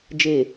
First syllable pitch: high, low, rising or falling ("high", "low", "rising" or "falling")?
low